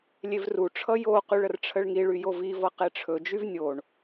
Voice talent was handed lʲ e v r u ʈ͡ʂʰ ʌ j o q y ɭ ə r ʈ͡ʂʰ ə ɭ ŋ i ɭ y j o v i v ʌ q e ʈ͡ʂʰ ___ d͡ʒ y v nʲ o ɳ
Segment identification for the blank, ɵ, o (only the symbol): ɵ